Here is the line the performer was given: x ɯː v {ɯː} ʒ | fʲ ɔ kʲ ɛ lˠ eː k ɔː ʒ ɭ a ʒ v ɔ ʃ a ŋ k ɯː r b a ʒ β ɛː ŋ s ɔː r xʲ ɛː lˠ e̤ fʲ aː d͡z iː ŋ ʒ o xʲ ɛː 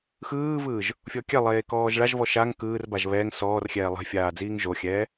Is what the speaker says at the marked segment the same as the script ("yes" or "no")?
yes